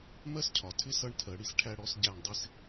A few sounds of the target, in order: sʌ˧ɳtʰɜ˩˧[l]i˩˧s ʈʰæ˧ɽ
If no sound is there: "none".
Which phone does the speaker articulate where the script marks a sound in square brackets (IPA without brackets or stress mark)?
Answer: ɽ